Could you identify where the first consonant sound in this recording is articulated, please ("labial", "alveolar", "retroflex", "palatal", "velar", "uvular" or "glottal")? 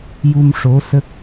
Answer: palatal